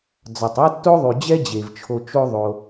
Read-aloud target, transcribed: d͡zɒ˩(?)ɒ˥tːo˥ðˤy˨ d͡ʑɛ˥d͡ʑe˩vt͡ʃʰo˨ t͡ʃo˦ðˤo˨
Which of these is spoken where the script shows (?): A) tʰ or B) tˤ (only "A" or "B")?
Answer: B